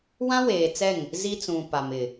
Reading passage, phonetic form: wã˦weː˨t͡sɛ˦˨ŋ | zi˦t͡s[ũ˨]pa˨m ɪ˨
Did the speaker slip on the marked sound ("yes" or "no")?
no